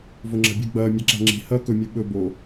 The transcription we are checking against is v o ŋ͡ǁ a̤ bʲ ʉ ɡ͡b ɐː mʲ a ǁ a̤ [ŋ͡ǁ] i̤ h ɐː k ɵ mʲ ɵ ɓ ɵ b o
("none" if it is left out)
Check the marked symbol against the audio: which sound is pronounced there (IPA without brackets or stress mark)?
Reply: ŋ͡ǁ